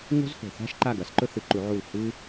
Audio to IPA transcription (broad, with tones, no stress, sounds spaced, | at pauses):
ŋ o̤˥ z h o̤˨ θ a̤˥ ʃ ǃ a˥˨ ɡ ɐ˨˥ s ǃ ɵ˥ θ ɨ˨˥ ǃ u˨˥ ʕ u˥˨ l h ɨ˥